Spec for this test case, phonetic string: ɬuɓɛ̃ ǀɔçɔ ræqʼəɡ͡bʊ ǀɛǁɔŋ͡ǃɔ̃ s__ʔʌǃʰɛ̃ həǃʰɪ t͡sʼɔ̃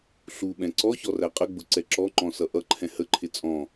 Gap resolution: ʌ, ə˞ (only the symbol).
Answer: ʌ